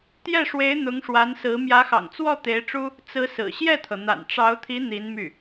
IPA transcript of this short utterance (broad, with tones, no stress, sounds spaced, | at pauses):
t̪ j ɛ˥˩ ʂ w e˧˥ ɪ̯ n̪ ʊ˧˥ ŋ ʂ w a˧˥ n s ɹ̩˧˥ m j ä˧˥ x ɑ̰˨˩ ŋ t͡s w ɔ˥˩ t̪ e˧˥ ɪ̯ ʈ͡ʂ u˥ | t͡s ɹ̩˧˥ s ɹ̩˨˩ ɕ j ɛ˥˩ t̪ʰ ɤ˩ n̪ a̰˨˩ n ʈ͡ʂ ɑ˧˥ ʊ̯ t̪ʰ i˧˥ n̪ i˧˥ n m y˥˩